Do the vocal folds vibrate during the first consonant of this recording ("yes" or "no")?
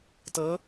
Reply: no